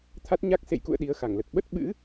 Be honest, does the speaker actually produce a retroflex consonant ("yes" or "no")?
no